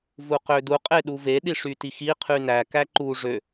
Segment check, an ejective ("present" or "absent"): present